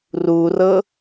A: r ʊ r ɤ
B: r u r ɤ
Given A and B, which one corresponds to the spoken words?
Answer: B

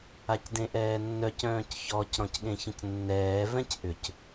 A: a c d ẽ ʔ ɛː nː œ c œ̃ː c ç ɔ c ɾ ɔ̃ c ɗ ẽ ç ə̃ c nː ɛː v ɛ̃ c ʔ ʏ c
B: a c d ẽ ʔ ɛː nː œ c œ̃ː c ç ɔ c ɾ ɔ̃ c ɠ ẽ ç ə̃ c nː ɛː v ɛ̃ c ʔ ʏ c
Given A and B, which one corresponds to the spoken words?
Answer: B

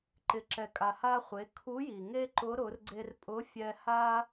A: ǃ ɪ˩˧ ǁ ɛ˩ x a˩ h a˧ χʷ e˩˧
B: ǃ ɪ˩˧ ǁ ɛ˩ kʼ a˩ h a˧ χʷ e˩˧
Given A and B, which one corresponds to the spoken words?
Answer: B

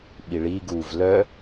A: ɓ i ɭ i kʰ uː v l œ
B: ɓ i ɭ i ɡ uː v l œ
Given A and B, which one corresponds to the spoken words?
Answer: B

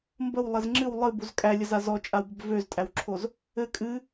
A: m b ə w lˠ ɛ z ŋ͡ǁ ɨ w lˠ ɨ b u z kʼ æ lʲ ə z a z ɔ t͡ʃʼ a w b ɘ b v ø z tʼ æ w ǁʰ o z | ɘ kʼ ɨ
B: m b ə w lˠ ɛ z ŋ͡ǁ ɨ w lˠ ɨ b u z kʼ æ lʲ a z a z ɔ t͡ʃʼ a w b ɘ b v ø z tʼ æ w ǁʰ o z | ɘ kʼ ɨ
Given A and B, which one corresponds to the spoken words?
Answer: A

